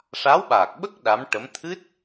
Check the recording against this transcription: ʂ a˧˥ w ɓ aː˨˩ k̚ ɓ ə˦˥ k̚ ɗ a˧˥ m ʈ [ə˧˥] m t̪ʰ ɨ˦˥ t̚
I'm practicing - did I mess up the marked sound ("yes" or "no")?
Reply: no